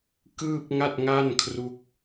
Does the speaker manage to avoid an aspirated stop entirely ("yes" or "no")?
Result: no